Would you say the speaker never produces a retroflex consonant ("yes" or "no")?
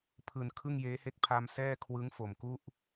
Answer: yes